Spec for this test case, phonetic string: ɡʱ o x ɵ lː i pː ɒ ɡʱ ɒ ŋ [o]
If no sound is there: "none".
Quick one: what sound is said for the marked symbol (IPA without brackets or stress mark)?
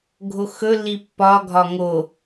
o